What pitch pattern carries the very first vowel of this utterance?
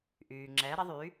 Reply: low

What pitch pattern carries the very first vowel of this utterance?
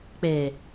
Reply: low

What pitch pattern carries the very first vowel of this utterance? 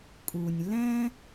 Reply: low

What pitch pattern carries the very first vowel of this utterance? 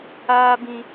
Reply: high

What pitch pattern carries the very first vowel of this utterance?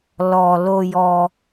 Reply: low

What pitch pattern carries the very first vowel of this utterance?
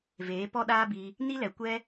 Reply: rising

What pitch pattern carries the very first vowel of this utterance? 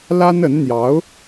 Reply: high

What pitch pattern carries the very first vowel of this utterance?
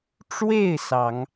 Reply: falling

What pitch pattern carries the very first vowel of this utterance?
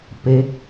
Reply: rising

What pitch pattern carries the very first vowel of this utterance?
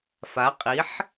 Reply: rising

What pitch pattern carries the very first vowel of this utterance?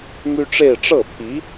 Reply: high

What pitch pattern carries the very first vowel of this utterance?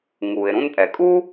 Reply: low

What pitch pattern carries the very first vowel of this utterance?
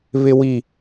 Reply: low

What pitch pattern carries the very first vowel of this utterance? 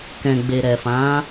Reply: low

